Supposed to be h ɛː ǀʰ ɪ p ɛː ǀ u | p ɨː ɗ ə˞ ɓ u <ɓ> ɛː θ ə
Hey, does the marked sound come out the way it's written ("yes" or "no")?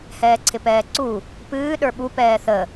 no